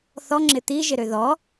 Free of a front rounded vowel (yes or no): no